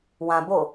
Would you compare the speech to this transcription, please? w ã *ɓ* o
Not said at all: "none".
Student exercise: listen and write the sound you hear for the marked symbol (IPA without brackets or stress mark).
b